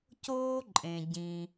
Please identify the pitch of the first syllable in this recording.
high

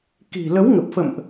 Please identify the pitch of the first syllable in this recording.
low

